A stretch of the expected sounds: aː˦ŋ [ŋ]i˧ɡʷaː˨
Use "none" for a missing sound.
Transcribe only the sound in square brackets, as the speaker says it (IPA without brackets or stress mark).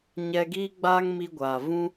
m